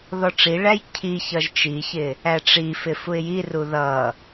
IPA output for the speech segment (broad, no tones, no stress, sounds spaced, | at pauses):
ð ɔ ʈ͡ʂ i ɭ æ j cʰ i ç ʌ ʒ t͡ʃ i ç ɪ | æ ʈ͡ʂ i f ɪ f u ɪ̯ j i r u ð ʌ